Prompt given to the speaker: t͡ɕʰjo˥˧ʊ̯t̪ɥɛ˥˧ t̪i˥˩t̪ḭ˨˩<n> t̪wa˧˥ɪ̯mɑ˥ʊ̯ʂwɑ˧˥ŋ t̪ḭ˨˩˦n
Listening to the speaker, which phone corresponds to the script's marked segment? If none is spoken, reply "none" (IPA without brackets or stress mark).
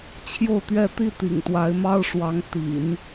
ŋ